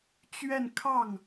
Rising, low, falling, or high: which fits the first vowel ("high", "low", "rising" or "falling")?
falling